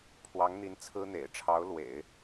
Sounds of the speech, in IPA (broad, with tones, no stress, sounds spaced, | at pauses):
pʰ w ɑ˧˥ ŋ n̪ i˧˥ n t͡sʰ ɹ̩˥ n̪ ḛ˨˩ ɪ̯ ʈ͡ʂʰ ɑ˧˥ ʊ̯ l w ḛ˨˩˦ ɪ̯